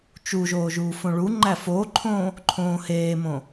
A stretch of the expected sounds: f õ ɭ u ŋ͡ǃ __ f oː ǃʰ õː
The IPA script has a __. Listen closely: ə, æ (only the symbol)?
æ